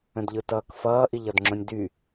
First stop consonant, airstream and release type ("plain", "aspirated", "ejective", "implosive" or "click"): plain